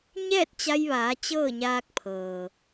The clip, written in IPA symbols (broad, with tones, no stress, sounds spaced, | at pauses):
ɲ ɛː˥˨ t̚ t͡ɕ a˧ j ʋ aː˩˧ t͡ɕ ɤː˥˨ ɲ aː˧ k̚ pʰ ɤː˩